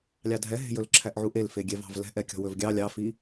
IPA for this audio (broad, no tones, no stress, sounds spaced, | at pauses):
lʲ ɑ dʱ ɛ ɦ e̤ j ɵ l ǁʰ æ ʔ ʕ u ʔ e l f e ɡʲ ɛ v ɑ̤ v l ɛ̤ ʔ ɛ kʲ ɔ̤ w ɵ v ɡʲ ɑ lʲ ɑ f i